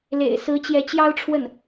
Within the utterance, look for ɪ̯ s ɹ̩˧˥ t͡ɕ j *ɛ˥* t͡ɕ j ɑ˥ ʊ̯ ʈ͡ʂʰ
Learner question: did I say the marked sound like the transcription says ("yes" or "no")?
no